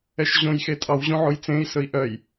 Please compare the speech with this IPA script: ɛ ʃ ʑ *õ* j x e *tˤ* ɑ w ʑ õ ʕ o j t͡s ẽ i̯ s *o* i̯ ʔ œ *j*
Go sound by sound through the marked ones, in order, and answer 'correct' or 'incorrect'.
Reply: correct, incorrect: tʼ, incorrect: ɵ, correct

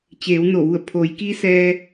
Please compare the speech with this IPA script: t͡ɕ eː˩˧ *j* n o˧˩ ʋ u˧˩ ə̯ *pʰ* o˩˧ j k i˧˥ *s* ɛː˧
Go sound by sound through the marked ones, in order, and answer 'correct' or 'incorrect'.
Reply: incorrect: w, correct, correct

